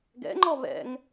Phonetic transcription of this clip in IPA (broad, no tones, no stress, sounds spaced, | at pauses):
ɡ ɛ̰ ŋ͡ǃ ɔ β ɛ̰ ŋ